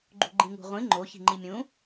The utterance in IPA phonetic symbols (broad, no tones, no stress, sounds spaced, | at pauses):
ɡ͡ǃ ṳ ɡ͡ǃ ĩ ŋ ṳ ʁʷ ĩ ŋ͡ǃ o ç i̤ ŋ͡ǃ i mʲ ũ